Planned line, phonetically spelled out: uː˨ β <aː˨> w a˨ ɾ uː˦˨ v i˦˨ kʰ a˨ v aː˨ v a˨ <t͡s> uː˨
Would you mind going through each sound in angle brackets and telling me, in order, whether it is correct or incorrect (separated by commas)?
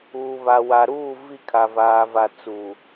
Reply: incorrect, correct